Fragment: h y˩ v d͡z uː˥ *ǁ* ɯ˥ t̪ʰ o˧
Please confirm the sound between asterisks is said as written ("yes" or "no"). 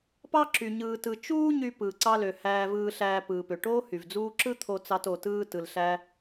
yes